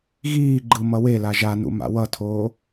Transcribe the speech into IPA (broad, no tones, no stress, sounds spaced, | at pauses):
ɣ iː ɡ͡ǃ ɯ m ʌ w e l a ʒ a n ṵ m a̰ w ʌ tʰ oː